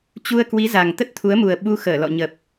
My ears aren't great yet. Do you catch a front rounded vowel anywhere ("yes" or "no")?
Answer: no